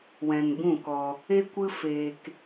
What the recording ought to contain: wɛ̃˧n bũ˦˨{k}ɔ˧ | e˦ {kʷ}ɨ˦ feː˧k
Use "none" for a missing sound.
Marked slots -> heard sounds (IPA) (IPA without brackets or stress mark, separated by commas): k, kʷ